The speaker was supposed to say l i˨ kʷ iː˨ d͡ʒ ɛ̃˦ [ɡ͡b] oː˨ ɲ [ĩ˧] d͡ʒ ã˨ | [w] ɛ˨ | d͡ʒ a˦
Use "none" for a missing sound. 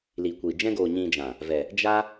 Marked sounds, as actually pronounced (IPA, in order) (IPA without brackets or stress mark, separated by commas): ɡ, ĩ˧, v